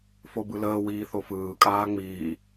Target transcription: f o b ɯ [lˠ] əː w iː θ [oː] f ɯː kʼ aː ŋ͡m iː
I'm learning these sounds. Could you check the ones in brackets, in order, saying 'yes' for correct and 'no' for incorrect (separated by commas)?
no, no